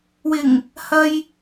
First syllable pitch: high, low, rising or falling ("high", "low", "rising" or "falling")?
low